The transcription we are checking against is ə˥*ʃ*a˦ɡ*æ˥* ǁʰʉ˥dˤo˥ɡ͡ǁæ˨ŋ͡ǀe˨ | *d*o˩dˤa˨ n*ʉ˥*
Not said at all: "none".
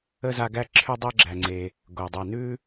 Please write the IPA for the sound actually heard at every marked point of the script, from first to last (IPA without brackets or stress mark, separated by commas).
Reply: z, æ˥, ɡ, ʉ˥